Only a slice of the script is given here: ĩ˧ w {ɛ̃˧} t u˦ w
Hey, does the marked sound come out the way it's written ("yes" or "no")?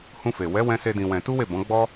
yes